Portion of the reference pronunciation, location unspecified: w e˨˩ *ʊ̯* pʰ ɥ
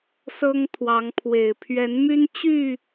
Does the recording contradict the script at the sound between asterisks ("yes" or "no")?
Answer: yes